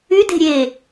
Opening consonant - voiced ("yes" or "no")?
yes